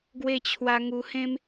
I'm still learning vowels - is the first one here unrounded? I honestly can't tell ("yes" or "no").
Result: yes